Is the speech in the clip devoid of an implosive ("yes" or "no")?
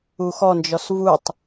yes